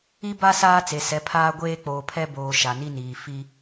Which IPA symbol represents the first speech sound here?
i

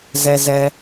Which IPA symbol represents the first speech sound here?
z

